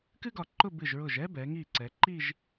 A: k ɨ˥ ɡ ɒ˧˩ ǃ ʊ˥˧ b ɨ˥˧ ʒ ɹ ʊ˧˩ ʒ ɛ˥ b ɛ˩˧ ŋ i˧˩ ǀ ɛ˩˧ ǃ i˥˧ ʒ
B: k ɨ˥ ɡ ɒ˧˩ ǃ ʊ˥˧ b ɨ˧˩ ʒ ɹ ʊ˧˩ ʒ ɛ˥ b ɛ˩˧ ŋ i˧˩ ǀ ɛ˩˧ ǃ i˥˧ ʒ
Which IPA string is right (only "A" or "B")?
B